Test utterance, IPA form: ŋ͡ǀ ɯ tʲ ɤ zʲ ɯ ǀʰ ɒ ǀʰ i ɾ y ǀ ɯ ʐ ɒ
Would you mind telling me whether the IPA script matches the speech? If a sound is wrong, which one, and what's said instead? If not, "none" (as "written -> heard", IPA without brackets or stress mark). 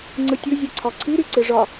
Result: ɤ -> ɯ